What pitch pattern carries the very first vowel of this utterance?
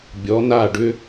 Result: rising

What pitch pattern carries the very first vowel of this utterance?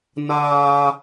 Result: high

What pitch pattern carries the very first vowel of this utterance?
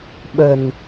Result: low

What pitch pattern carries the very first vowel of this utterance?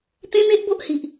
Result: high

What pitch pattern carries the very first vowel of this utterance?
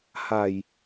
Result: low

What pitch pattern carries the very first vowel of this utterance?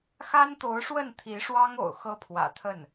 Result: high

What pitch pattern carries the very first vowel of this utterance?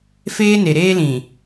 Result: high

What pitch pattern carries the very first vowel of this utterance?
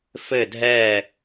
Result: falling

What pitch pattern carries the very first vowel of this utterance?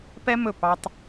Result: high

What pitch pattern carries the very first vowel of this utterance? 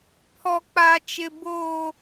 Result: high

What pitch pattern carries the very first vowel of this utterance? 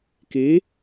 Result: rising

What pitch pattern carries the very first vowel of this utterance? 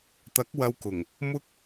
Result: rising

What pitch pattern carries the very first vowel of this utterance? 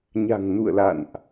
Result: low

